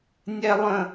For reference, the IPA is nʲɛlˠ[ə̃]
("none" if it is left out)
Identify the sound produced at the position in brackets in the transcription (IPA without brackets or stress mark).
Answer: ə̃